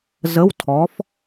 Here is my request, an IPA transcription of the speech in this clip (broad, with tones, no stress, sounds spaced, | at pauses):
z ə˧˥˧ w tʰ ɔ˨˥ f